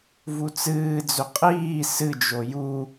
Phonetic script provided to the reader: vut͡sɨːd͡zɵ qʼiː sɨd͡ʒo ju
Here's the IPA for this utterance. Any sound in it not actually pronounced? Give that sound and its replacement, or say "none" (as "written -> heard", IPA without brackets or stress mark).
none